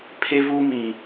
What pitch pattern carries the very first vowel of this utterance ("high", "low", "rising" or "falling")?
high